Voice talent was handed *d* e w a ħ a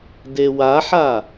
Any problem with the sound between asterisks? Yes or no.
no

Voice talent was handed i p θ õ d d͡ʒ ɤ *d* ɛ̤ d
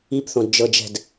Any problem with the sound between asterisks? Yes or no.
yes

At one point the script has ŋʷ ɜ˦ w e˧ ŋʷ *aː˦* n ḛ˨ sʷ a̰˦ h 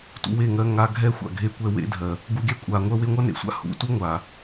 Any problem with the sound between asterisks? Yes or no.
yes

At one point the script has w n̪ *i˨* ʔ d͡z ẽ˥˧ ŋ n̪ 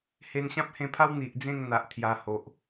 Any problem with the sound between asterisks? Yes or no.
no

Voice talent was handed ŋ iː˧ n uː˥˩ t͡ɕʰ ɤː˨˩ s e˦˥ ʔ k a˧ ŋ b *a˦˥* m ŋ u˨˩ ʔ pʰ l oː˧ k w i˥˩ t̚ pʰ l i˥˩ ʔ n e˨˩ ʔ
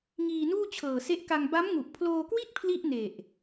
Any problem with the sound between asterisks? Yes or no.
no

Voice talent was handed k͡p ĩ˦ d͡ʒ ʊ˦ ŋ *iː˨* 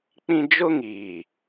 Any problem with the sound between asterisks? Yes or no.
no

